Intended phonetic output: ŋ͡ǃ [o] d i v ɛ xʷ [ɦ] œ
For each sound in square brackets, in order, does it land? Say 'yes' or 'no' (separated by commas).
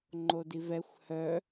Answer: yes, no